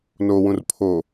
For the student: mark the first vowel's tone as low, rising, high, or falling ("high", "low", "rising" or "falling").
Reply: low